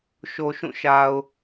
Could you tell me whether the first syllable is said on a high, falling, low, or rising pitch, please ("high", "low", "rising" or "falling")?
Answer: low